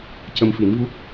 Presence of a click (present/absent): absent